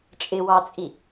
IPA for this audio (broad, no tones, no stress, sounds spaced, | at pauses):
t͡ʃʼ ɪ w ɑ t͡sʼ i